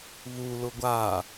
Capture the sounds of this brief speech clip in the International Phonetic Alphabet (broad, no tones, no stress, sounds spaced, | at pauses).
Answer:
β u l ʊ ɡʷ a